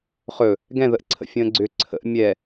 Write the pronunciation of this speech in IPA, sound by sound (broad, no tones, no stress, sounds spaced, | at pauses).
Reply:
χ ɵ | ɡ ɛ̃ ð ə ʔ ǀʰ ə̰ fʲ ə̃ː ɡ͡ǀ ʏ ǀʰ ə̰ ʔ mʲ ɛ